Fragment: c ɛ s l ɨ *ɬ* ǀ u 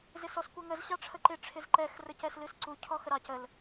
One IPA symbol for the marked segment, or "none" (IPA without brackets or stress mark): s